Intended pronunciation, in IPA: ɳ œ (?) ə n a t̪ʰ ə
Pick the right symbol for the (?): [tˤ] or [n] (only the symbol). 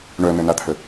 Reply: n